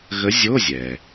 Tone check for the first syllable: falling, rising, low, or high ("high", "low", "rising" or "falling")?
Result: rising